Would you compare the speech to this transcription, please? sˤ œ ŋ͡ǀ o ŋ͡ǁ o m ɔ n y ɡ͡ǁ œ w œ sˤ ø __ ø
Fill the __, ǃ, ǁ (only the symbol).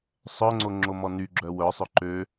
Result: ǃ